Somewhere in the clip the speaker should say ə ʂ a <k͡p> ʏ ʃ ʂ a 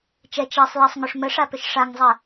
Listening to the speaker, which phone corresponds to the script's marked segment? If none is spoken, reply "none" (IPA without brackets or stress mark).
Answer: p